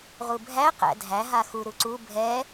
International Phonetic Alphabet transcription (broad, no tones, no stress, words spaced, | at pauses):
ʁubʱæ qæ̰dʱæ ɦaxu ɾuǀu bʱɛ